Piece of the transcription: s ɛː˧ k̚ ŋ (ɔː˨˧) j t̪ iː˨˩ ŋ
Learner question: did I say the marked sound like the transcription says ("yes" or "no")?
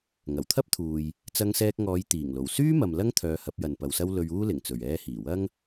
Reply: yes